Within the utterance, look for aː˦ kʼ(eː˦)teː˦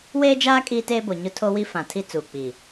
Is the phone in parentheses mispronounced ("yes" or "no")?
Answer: yes